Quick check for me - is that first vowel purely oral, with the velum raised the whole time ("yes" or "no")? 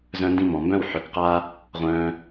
no